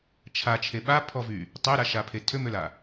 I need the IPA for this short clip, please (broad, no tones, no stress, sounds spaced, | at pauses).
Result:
t͡ʃʰ a t͡ʃʰ e ɓ a pʰ ɔ v y | tˤ ø ɾ a ʃ a pʰ e tʰ ø m ø l a